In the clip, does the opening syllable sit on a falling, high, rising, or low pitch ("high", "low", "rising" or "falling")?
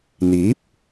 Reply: rising